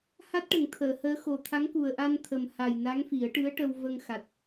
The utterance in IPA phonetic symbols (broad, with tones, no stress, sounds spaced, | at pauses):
h a˦˥ t̚ ʈ ə˨˩˨ ŋ t̪ʰ əː˨˩˨ h əː˧˥ x o˨˩ t̪ʰ a˧˥ ŋ k u˨˩ ə̯ ʔ a˧ n t̪ʰ ə˨˩ m h a˨˩ j n a˧˥ ŋ f i˨˩˦ ə̯ ʈ ɨ˧˥ ə̯ ʈ ə˧ w v ə˧ ŋ x a˨˩ t̚